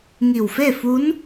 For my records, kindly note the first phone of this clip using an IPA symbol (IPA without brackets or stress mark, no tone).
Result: ŋ